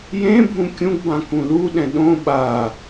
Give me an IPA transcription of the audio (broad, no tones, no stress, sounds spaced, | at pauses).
j ẽ bʱ ũ kʲ ũ ɡ b ã k ũ l u ɗ ɛ̃ ɗ õ ɓ a